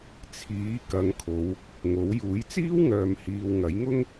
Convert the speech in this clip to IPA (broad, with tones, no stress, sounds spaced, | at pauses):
t͡sʰ iː˨˥ k ɐ˨˧ ŋ kʰ o˨˧ w | ŋ o˨˥ w j uː˨˥ j t͡s iː˥ w ŋ œː˨ m h iː˨ w ŋ ɐ˨˥ j ŋ ʊ˥ ŋ